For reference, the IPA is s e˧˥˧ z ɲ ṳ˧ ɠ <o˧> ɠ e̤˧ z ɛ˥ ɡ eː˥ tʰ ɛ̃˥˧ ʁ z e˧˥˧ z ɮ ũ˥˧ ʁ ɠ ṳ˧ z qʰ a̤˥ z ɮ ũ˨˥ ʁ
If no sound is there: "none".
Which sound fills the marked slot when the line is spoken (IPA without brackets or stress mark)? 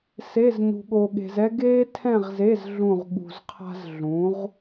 o˧